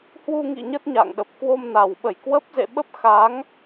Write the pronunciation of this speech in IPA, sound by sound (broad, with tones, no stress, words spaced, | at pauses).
hwu˧ŋḭ˧˨ ɲə˦˥t̚ɲa̰˧˨ŋɗə˨˩p̚ kwo˧mna˨˩wɓə˧˩jkwə˦˥p̚ zḛ˧˨ɓə˦˥p̚ xa˨˦ŋ